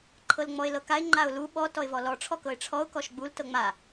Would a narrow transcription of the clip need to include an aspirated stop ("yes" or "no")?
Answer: yes